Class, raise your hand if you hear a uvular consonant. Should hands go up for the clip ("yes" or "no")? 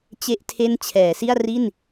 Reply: no